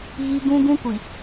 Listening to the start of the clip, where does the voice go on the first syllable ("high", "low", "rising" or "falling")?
high